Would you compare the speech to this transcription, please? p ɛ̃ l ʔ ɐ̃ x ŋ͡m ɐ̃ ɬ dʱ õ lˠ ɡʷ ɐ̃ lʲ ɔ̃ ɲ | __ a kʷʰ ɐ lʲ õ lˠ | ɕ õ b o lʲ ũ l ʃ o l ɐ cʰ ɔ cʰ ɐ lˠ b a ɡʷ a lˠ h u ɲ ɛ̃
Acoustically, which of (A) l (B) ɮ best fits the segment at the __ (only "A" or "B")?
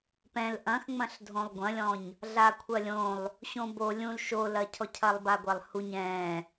B